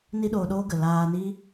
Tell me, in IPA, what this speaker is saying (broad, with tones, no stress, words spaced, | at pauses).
ni˦ɗoː˧ɗoː˦ɡə˨ laː˧ni˦